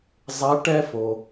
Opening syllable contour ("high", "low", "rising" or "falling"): rising